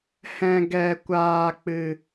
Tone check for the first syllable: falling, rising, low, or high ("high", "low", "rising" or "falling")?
low